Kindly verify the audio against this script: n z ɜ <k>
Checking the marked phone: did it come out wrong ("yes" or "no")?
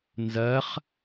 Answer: yes